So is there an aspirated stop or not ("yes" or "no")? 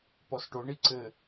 no